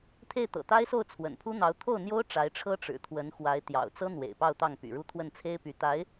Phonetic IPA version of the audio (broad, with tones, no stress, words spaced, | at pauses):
t̪ʰe˥˩ɪ̯t̪ɤ̰˨˩t̪a˥ɪ̯so˥˩ʊ̯ t͡sʰwə̰˨˩npʰu˥n̪ɑ˧˥ʊ̯ t̪ʰo˥˩ʊ̯n̪jo˥ʊ̯ ʈ͡ʂa˧˥ɪ̯ʈ͡ʂʰɤ˥ ʈ͡ʂɻ̩˨˩t̪ʰwə˧˥nxwa˧˥ɪ̯ t̪jɑ̰˨˩ʊ̯t͡sɤ˥n̪wḛ˨˩ɪ̯ pɑ˥˧ʊ̯ t̪ɑ˥˩ŋ py̰˨˩ɻu˥˧ t̪ʰwə˥˩nt͡sʰe˥ɪ̯ py˧˥t̪a˧˥ɪ̯